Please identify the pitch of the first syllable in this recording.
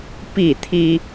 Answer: falling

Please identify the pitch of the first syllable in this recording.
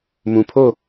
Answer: low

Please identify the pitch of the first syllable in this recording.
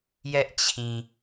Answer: high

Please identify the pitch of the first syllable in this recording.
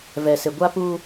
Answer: low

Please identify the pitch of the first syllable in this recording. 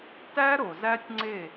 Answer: high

